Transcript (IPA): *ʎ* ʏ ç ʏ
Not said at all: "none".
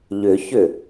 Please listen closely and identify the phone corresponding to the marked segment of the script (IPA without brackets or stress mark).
ʎ